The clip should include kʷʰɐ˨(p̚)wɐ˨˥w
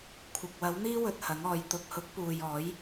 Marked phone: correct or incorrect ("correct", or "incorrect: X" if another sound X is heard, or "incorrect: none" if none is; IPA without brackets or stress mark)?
incorrect: k̚